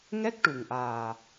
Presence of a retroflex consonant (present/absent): present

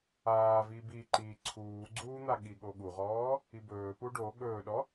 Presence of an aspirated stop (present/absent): present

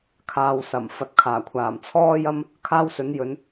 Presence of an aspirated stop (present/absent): present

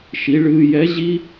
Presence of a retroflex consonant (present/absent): present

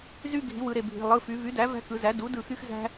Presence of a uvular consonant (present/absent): absent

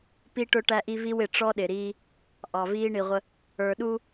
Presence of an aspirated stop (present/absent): absent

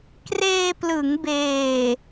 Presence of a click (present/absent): absent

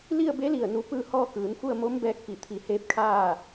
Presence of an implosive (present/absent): absent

